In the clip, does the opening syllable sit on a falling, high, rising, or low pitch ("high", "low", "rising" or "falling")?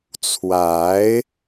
rising